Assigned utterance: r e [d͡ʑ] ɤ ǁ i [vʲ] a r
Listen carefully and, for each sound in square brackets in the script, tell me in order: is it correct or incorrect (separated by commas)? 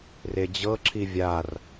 correct, correct